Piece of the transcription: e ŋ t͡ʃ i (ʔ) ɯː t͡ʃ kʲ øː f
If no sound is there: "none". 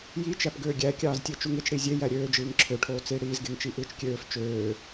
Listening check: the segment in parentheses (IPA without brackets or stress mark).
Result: ʔ